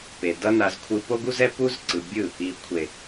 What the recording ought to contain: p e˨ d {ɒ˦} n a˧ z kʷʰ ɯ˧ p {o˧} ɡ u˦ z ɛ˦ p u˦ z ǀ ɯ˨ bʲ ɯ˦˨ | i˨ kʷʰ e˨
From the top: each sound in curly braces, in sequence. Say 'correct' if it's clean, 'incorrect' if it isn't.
incorrect, incorrect

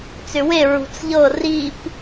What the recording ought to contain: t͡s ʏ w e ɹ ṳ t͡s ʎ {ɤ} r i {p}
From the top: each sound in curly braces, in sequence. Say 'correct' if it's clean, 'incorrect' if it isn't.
correct, correct

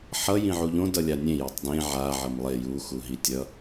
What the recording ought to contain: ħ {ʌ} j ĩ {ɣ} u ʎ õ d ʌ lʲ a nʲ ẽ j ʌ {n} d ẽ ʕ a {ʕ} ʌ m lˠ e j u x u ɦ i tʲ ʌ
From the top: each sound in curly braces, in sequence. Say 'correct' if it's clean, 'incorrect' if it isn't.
correct, incorrect, incorrect, correct

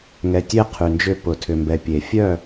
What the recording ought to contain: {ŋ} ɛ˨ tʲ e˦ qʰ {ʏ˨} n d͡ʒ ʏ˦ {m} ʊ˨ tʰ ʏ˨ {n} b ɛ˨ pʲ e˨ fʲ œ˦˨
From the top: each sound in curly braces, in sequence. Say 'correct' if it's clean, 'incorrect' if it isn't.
correct, incorrect, incorrect, incorrect

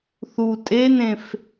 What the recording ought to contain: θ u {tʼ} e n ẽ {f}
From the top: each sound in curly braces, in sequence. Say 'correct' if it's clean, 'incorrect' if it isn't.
correct, correct

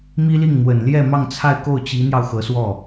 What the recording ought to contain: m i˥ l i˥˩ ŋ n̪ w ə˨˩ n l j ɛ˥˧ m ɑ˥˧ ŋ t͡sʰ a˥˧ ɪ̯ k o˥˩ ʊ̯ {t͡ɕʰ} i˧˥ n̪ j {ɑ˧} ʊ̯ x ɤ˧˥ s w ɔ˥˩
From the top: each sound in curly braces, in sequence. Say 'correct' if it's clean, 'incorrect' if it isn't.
incorrect, correct

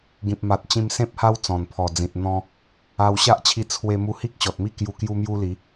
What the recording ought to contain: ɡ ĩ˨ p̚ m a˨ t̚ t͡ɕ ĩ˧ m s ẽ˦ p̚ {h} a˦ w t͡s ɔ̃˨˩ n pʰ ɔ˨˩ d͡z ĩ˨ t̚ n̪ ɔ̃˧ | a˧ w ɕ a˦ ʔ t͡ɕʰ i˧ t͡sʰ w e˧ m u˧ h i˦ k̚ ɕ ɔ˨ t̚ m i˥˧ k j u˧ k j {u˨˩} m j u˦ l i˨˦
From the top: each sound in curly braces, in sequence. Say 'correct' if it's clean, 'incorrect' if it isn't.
correct, incorrect

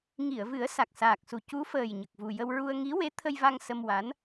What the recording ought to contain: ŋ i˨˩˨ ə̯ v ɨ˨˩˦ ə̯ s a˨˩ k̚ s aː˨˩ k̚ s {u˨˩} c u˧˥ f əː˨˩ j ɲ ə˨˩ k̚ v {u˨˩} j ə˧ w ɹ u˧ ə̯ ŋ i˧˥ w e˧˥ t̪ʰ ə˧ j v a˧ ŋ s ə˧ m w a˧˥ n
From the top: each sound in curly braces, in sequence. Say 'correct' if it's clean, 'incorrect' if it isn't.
correct, correct

